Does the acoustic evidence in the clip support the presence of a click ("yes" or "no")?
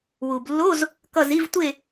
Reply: no